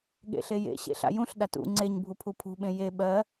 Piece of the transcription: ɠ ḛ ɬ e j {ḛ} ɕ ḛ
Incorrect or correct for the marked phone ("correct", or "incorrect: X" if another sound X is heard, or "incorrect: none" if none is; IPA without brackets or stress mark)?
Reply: correct